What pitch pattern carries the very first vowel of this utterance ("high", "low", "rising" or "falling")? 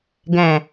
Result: low